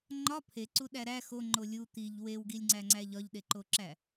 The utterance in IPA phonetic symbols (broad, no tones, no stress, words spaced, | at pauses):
ŋ͡ǃɒ pʰeǀuɗæ ɾæ xoŋ͡ǃo lʲu t̪iʎ wewɡilʲŋ͡ǀæŋ͡ǀæ ʎɒʎɗeǃoǁæ